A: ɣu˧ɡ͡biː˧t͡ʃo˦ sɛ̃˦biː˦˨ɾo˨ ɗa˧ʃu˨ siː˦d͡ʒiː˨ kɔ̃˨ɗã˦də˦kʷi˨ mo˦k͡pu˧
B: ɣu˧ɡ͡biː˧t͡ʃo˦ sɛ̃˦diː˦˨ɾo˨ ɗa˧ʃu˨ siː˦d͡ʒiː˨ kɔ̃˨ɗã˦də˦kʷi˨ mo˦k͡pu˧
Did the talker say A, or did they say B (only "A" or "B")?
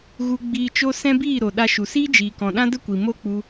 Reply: A